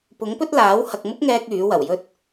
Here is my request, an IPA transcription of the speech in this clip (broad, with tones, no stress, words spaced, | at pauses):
pʊ˨˥ŋpɵ˥t̚laː˨˥w hɐ˨k̚mʊ˥k̚ŋɛː˧k̚ yː˨˥wɐ˨˩wjɵ˥t̚